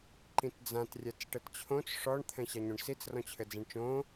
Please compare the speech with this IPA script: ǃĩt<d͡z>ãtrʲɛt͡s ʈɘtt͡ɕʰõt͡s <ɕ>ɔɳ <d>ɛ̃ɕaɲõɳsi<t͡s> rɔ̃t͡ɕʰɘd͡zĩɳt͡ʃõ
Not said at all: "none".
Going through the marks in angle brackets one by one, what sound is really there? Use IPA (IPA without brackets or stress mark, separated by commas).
d͡z, ʂ, t̪ʰ, t͡s